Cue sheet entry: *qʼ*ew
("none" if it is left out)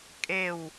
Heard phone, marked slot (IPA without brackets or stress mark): kʼ